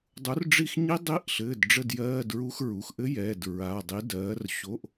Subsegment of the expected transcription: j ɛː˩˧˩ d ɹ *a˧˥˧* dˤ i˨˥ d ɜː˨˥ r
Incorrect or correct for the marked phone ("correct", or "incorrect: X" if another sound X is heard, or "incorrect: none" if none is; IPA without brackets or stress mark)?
incorrect: a˩˧˩